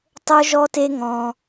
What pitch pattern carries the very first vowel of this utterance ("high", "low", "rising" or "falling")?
high